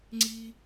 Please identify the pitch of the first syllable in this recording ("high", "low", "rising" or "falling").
high